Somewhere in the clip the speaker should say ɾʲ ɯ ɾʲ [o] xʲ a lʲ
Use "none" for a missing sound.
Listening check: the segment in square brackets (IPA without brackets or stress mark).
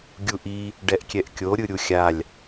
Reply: u